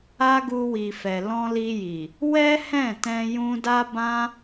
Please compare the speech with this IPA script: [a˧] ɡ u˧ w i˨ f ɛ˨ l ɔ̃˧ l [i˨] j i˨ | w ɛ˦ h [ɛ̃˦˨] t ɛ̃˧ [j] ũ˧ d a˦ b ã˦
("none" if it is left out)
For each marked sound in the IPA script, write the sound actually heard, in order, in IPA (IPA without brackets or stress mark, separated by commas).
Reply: a˦, i˧, ɛ̃˦˨, j